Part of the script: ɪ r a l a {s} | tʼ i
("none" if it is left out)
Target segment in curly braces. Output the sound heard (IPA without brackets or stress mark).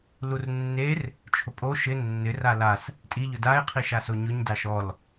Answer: s